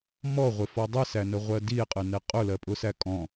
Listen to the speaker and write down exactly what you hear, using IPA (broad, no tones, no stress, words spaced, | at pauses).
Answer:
mɔʁʷɪfɔ dˤɪsænəʁʷɜ die̯qʼənɛ qʼʊlɜpʼʊsæ kʼɔ̃